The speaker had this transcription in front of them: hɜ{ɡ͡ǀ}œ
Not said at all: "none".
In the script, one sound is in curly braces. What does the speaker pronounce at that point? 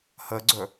ɡ͡ǀ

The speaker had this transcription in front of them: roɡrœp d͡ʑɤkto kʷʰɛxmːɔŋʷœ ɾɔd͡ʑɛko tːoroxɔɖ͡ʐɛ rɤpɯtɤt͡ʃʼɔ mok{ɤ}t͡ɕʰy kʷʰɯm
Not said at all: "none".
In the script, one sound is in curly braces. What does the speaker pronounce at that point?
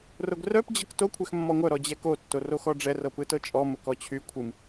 ɔ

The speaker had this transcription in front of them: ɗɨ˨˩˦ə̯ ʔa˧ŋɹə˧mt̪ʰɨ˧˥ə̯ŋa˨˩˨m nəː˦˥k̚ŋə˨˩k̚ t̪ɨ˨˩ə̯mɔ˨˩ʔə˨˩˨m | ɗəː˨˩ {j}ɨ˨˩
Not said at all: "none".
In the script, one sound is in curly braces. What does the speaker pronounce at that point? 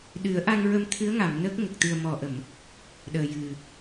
j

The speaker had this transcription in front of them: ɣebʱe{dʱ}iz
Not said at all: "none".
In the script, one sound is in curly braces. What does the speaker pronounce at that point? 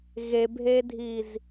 dʱ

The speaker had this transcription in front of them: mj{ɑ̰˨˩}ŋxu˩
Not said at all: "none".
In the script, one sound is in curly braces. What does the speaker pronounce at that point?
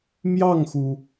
ɑ˥˩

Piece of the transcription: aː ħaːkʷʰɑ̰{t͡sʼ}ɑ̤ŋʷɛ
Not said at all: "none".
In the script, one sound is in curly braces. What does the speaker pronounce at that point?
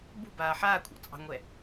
t͡sʼ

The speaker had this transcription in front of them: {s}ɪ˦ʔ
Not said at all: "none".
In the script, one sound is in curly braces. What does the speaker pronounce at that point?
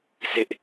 s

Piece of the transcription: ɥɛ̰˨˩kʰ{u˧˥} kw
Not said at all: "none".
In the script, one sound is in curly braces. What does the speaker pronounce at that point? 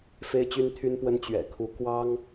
u˧˥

